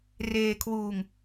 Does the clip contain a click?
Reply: no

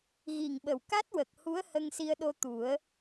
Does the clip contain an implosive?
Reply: yes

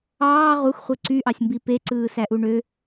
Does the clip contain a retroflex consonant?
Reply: yes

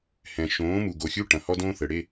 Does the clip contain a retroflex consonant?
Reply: yes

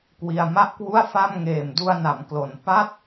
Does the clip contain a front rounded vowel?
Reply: no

